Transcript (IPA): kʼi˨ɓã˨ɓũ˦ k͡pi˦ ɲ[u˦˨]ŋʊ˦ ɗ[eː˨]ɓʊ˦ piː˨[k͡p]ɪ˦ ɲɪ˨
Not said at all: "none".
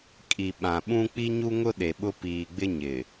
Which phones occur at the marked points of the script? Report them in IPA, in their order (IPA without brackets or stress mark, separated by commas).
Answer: u˦, e˨, ɡ͡b